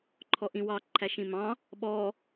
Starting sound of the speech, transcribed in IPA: ǃʰ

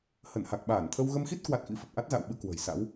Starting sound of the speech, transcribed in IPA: h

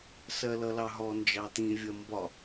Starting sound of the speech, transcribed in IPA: s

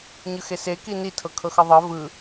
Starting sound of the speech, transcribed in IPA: ɲ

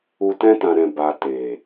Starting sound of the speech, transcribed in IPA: u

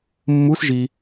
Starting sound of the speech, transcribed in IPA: mː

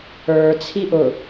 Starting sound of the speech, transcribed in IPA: ə˞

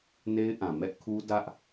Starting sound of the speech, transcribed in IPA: n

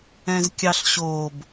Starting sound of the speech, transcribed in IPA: ɛ̃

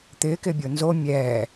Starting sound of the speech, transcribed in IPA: t̪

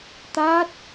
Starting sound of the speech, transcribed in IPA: t̪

